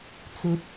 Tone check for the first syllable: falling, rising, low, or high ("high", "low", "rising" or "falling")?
low